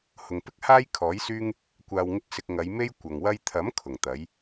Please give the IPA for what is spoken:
hʊ˨ŋpɪ˥k̚ haː˥j kʰɔː˨˥jsyː˥ŋ | kʷaː˧wŋɪ˥k̚ sɪ˧k̚ ŋɐ˨˧jme˥j kʷɐ˨ŋwɐ˥j t̪ʰɐ˨˥m kʰʊ˨˩ŋt̪ɐ˨˥j

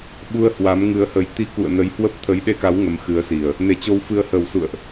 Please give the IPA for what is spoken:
ɓu˧ə̯hwa˨˦m ŋɨ˨˦ə̯hə˨˦j t̪i˧kṵ˧˨ə̯ nə˨˦jhwə˦˥p̚ t̪ʰə˨˦jɗe˧ka˨˦w ŋə˨˦mxɨ˨˦ə̯si˨˩ə̯ | ne˨˩t͡ɕo˨˦wfɨ˨˦ə̯ hə˨˩wsṵ˧˨ə̯ʔ

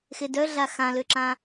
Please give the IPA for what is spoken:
xedœɮa xãløǁã

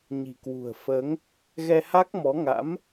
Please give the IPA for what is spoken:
ɲi̤˨˩kwṳ˨˩ə̯fəː˨˦ŋ | ɣɛ˧ha˦˥k̚mɔ˨˦ŋa̰˧˥m

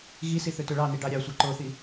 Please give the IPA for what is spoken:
ɣisi θøtøɭɑni ɖɑɾʲɑsʷɑ ǃoθi

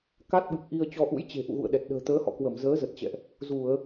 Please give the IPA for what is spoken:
ka˦˥t̚ɓɨ˨˩k̚ʔi˧ə̯ t͡ɕɔ˧ʔṵ˧˥jt͡ɕe̤˨˩ ʔṵ˧˨ɣṵ˧˨ə̯ɗɛ˨˩t̚ ɗə̤ː˨˩t̪əː˨˦hɔ̰˧˨ kwə˧˩mzəː˨˦ zə˨˩t̚t͡ɕɛ̰˧˨ʔ | zu˧˩˨ə̯

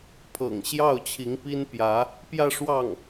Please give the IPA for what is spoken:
pʰɤ̰˨˩ŋɕjɑ˥˩ʊ̯ t͡ɕʰi˧˥ŋpi˥npjä˧˥ | pjä˥˧ʂwɑ˥˩ŋ

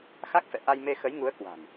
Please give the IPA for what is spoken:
xa˦˥k̚fɛ̰˧˨ ʔa˧jme˧ xə˨˦jŋu˨˦ə̯kwa̤˨˩n

